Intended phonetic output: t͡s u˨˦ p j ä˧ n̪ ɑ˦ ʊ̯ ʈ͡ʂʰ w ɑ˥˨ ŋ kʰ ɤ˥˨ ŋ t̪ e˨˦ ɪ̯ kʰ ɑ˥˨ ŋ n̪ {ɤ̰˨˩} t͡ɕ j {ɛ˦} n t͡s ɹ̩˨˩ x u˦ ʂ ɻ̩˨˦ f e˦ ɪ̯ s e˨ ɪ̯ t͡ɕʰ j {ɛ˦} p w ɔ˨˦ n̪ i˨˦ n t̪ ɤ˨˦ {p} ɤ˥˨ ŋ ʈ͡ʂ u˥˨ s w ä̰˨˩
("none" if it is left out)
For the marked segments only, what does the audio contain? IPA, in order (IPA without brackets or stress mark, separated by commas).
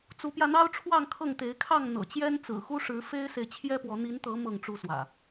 ɤ̰˨˩, ɛ˦, ɛ˦, m